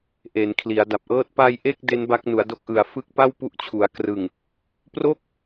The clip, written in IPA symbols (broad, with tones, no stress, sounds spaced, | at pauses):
ʔ e˩˦ n kʰ l i˩˦ a̯ d a˨˩ p̚ ʔ ɤː˥˩ t̚ p a˧ j ʔ e˥˩ k̚ d e˦˥ n b a˦˥ k̚ n u˩˦ a̯ d o˦˥ k̚ ʔ ɯ˨˩ a̯ f ɯ˦˥ k̚ p a˥˩ w p u˦˥ ʔ t͡ɕʰ u˩˦ a̯ k r ɯ˨˩ ŋ | p r o˥˩ k̚